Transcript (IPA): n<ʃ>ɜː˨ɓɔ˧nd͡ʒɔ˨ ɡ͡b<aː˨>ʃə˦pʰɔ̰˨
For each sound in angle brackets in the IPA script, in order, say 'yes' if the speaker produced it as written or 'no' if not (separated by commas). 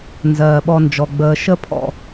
no, no